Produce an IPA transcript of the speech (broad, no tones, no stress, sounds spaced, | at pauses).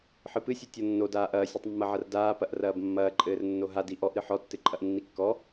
ħ ɨ p ɨ sʲ ɨ tʲ ɔ nː o d aː ʔ ɐː sʲ ɐ tˤ mː ɐ ʕ ɐ r d aː p ɐ ʔ r ɐː b mː ɐː ǃʼ ɘː r nː o ɦ a d i ʔ ɔ ʔ ɾ ɨ ħ ɔ tː ɨ ǃʼ ɐ ʔ nː i kː ɔ